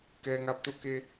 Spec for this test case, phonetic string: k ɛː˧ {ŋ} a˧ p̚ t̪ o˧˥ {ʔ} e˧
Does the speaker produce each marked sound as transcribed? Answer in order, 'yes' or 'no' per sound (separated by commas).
yes, no